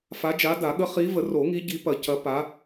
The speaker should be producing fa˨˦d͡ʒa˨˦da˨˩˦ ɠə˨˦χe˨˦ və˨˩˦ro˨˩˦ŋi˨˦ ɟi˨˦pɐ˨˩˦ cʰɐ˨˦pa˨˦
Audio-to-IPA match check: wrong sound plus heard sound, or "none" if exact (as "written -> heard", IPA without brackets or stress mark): e˨˦ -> i˨˦